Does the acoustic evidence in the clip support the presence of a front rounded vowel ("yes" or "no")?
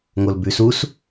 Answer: no